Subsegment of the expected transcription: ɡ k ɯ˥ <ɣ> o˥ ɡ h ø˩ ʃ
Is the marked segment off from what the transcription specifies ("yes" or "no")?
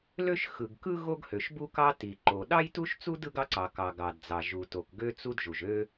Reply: no